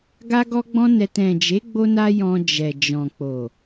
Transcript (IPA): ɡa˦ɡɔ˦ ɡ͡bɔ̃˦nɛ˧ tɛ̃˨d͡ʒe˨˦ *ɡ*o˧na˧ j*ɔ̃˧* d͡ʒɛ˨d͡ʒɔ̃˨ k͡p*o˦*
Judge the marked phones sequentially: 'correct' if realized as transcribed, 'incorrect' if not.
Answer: incorrect, correct, incorrect

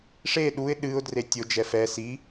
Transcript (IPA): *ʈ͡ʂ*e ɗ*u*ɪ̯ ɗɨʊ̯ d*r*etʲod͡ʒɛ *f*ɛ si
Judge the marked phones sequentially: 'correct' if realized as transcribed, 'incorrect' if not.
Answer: incorrect, correct, correct, correct

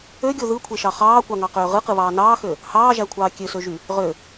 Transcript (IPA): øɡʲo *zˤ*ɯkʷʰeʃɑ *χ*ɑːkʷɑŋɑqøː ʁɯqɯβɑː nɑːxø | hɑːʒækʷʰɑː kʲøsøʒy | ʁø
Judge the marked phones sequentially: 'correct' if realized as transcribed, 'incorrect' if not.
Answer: incorrect, correct

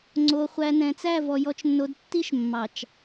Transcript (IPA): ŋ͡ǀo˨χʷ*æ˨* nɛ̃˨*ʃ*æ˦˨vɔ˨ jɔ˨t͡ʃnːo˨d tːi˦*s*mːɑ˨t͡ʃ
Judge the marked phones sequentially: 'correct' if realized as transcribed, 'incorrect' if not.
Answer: correct, incorrect, incorrect

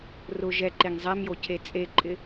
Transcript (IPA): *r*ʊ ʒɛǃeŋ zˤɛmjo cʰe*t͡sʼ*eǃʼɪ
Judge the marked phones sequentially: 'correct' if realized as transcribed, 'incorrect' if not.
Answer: correct, correct

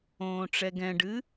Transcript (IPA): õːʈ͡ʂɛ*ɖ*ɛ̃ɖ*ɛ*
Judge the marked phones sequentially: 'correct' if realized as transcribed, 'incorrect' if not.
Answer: incorrect, incorrect

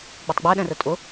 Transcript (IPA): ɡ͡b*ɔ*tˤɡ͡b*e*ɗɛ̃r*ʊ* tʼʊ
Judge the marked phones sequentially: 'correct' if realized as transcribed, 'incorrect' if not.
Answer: incorrect, incorrect, incorrect

